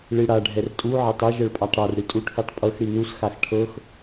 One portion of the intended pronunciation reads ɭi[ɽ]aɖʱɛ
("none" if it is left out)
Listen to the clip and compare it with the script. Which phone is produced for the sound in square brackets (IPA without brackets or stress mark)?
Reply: ɽ